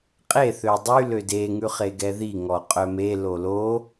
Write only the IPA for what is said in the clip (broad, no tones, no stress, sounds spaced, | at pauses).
qʼ e θ ø dˤ y l ø d e ŋ ʉ χ e ɡ ɛ ð i ŋ ɔ qʼ œ m e l o l o